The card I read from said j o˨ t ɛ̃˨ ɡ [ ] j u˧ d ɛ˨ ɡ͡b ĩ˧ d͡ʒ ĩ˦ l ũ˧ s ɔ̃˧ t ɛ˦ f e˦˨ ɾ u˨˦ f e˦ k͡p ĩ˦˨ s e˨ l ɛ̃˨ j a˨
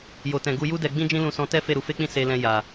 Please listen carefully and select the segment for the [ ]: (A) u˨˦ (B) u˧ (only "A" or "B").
B